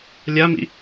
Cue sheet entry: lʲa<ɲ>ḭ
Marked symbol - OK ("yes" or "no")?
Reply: no